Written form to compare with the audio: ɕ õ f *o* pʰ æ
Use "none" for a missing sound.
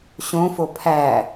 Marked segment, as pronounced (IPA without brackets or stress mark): o